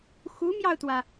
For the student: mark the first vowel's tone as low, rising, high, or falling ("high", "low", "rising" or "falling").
rising